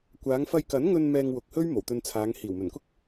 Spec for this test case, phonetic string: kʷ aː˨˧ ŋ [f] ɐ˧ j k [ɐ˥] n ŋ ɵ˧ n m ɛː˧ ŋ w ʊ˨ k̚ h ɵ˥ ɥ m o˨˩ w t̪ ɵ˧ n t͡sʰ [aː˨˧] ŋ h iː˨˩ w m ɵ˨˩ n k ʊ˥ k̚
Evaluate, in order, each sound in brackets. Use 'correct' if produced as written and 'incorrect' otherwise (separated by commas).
correct, incorrect, correct